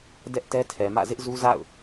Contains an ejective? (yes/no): no